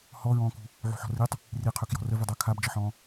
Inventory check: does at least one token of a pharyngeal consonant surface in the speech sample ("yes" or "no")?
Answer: yes